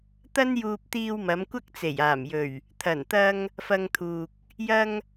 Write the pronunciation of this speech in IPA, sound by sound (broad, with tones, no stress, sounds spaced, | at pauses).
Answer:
t̪ ɐ˥ n j uː˧ p̚ t̪ iː˧ w m ɐ˨˧ m kʷ ɐ˥ k̚ t͡s e˨˩ j aː˨˩ m j ɵ˨˩ ɥ | t̪ʰ ɐ˨˩ n t̪ ɐ˧ ŋ | f ɐ˧ ŋ t̪ʰ uː˨ k̚ | j ɐ˧ ŋ